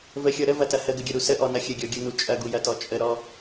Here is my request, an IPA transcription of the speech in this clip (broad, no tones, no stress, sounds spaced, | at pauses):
v ə xʲ ɔ ɾ ə v ɐ t ɐ h ə ɡ ə ɡʲ ɐ ɾ u s ə ʔ ɔ n ɐ xʲ ə ɡʲ ɔ ɡʲ u n u t͡ʃʼ ɐ ɡ u j ɐ t ɔ t͡ʃʼ ə ɾ ɔ